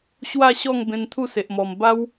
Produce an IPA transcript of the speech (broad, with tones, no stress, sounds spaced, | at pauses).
ɕ w a˥˧ ɕ ɔ˥˧ ŋ b ẽ˧ n t̪ʰ u˥˧ s e˨ ʔ m ɔ˨˩ m b a˦ w